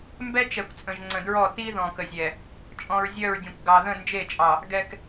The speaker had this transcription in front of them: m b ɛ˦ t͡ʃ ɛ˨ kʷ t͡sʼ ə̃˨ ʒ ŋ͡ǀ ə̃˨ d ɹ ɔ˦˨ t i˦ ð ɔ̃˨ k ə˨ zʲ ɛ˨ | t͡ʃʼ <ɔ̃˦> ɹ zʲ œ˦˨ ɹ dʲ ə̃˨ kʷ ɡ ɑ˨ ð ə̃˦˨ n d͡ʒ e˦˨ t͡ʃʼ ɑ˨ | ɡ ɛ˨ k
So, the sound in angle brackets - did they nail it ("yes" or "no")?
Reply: no